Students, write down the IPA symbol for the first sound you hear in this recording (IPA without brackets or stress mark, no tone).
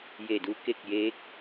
j